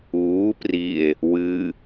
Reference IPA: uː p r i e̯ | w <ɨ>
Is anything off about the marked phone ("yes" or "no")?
no